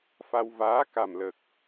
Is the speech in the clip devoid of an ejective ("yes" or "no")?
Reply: yes